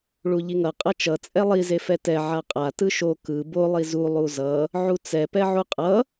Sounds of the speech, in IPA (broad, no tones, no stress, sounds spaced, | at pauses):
ɭ u ʎ i ŋ ʌ qʼ ʌ t͡ʃ ʌ t͡sʼ ɛ lˠ i z e f ɛ t ɛ ʕ a qʼ a t ɯ ʃ o k ɯ b o lˠ i z u lˠ u z ʌ | ʕ u t͡s ɛ p ɛ ʕ u qʼ ʌ